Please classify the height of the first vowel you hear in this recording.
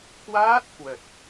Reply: low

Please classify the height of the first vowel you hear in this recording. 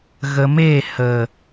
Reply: mid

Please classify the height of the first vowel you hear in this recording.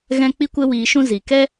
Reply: mid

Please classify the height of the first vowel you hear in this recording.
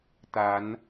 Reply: low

